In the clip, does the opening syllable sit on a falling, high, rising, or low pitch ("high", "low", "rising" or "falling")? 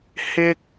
high